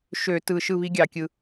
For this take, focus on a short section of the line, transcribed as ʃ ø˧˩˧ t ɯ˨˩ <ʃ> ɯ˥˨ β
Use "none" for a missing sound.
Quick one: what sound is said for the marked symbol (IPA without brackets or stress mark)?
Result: ʃ